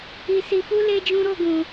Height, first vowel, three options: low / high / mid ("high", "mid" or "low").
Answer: high